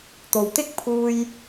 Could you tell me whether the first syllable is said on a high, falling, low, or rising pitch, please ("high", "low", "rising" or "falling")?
low